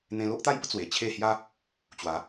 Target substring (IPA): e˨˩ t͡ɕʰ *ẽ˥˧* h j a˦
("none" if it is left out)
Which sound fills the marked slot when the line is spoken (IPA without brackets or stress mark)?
e˥˧